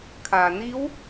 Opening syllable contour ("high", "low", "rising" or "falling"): low